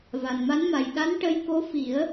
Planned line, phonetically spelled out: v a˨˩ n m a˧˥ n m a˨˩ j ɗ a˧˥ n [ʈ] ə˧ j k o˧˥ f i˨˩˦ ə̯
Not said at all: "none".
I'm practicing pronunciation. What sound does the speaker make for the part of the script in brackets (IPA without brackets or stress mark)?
ʈ